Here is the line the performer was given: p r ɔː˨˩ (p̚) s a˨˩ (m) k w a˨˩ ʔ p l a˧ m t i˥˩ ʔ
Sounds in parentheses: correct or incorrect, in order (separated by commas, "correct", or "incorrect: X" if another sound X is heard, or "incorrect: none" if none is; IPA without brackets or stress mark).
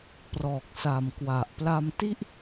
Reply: incorrect: k̚, correct